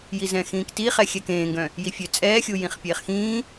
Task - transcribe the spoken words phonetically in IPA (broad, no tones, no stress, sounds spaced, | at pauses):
j i z ɛ̃ x ĩː k t i χ ɛ xʲ ɛ k ẽː ŋ ɡ œ̃ | j i fʲ ø t͡sʼ ɛː xʲ u j ĩ χ pʲ eː χ x ĩː